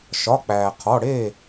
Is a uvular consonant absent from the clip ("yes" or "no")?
no